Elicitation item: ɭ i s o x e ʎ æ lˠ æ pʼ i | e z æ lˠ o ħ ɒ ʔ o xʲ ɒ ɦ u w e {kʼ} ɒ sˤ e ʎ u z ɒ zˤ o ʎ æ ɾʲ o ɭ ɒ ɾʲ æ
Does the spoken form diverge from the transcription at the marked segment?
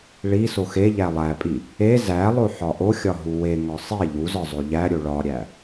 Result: yes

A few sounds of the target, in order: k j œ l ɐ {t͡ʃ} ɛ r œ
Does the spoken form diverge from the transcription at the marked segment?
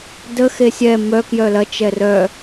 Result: no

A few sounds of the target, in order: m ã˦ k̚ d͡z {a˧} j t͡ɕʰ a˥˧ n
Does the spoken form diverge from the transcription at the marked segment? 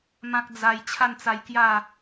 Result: no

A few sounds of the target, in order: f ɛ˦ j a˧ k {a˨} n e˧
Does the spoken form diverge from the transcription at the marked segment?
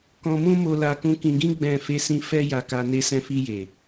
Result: yes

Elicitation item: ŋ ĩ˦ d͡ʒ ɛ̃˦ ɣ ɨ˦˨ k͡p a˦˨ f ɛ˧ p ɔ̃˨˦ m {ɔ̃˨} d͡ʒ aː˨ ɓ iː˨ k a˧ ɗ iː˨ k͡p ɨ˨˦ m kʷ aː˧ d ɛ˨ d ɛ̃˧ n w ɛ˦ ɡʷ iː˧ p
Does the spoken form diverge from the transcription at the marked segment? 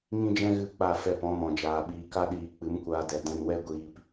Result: no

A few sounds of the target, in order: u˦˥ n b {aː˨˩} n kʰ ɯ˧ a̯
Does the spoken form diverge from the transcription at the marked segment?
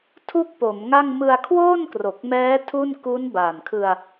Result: no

